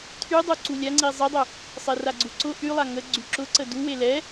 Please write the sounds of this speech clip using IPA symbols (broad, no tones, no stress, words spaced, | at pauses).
tʰy dˤuǀulʲa ŋ͡ǀizˤidˤʊ | sˤeraɡ͡ǀuǀʊ ʔylˠa ŋə ɡ͡ǀyǁʊǀə duwe lɛ